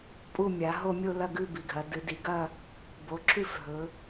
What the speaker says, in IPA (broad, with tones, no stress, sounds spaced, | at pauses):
pʼ u˥˧ mʲ a˩˧ ɦ o˥˧ mʲ o˥˧ l ɐ˥˧ ɡ ʉ˥˧ b i˩˧ ɡʱ ɐ˩˧ d ɨ˩˧ d i˩˧ ɡ ɐ˥˧ | b o˩˧ ǁʰ ʉ˥˧ f ɦ ɵ˩˧